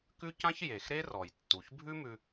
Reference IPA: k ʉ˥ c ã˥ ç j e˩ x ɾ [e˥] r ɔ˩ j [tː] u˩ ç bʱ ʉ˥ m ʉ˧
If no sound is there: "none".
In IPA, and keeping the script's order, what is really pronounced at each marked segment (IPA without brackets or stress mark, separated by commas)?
e˥, tː